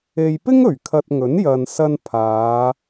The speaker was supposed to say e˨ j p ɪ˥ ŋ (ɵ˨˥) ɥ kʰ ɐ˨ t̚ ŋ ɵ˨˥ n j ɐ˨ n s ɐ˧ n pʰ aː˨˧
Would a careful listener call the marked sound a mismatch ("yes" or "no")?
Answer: yes